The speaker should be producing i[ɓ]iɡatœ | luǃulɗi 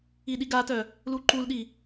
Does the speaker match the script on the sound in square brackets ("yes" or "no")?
no